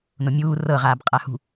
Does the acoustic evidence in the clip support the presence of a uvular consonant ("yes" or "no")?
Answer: yes